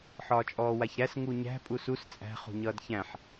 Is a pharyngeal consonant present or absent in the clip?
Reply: present